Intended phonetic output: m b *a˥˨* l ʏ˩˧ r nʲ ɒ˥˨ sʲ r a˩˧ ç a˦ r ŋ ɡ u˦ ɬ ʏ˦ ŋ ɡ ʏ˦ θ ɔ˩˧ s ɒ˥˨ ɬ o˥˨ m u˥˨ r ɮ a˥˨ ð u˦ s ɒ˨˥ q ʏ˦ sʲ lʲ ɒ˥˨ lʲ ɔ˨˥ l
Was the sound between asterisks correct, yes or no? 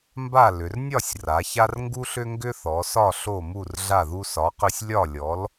yes